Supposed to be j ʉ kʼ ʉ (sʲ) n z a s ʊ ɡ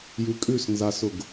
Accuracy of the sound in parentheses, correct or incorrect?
incorrect